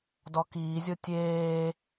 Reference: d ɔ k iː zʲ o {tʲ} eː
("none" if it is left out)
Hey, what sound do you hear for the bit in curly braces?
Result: tʲ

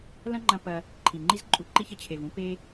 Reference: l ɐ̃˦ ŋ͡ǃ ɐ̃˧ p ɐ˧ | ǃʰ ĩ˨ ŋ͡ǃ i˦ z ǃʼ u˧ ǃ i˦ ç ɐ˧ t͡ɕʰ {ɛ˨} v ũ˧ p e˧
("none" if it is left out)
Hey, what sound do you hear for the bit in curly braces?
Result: e˨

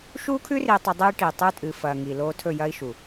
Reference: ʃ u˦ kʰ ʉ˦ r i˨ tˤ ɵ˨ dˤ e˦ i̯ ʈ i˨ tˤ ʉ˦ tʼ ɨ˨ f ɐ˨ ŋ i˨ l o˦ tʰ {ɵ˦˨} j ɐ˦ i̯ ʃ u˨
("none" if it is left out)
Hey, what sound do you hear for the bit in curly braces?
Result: ɵ˦˨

